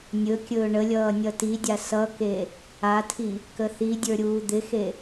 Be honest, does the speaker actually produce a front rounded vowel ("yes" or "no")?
no